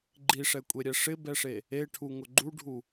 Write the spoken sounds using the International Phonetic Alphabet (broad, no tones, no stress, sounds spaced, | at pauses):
ɡ͡ǃ i ʂ ɛ kʷʼ e ɾʲ ɛ ʂ ɪ b ɛ ʂ e | e ʈʰ u ŋ ʊ ɡ͡ǃ u ɖʱ u